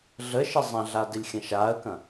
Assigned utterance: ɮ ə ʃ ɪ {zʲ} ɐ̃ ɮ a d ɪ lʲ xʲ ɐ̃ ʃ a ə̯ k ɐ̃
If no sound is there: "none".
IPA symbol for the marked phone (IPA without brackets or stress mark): zˤ